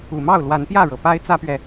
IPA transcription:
u˨˩ m ɑ˥˨ ʊ̯ l w a˨˦ n p j ä˥˨ ɻ ɤ˩ p a˦ ɪ̯ t͡s ä˦ p ɥ ɛ˨

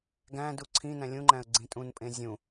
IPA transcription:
ɡ æ̃ d u ǀʰ ĩ n æ̃ lʲ ũ ŋ͡ǃ æ̃ ə̯ ɡ͡ǀ ĩ tʼ ũ n pʼ ẽ zʲ ũ

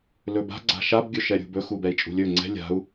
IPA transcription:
l ɵ b a̤ ɡ͡ǀ a̤ ʃ a b ɡʲ ɵ ʃ ɛ ɾʲ ṳ b ɵ x u b ɛ i̯ t͡ʃʼ ṳ lʲ ɵ ŋ͡ǀ ɛ̤ lʲ a̤ u̯

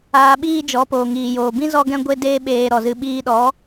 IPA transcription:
aː˧ ɓ iː˦ d͡ʒ ɔ˨˦ p oː˨ ŋ iː˨ j oː˨ b ĩ˦ z ɔ˦ ɡ ɛ̃˦ ɡʷ e˦ d eː˦ ɓ eː˧ ɾ ɔ˨ z ɨ˧ ɓ iː˧ ɗ ɔ˨˦

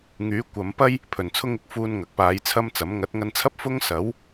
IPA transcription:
ŋ yː˨˥ kʷ ɐ˨˧ m p ɐ˥ j | pʰ ɵ˨˩ n t͡sʰ ʊ˥ ŋ ɪ˧ k̚ f uː˧ n ŋ ɐ˨ k̚ p aː˨˧ j t͡sʰ ɐ˥ m t͡s ɐ˨˥ m ŋ ɐ˨˥ t̚ ŋ ɐ˧ n t͡sʰ ɐ˥ p̚ f ʊ˥ ŋ s ɐ˨˥ w

